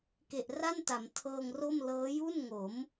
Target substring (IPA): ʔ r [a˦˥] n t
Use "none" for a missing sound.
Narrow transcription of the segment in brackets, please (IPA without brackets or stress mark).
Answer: a˥˩